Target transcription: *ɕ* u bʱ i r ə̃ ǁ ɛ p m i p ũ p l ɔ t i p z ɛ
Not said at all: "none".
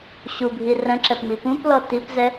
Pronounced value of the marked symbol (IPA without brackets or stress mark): ɕ